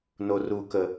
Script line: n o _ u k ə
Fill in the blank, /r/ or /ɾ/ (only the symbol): r